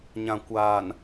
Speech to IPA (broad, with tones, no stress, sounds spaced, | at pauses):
ɲ ã˨ kʷ aː˨ n